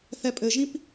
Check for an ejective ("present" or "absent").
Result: present